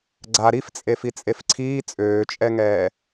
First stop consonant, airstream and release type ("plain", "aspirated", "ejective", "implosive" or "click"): click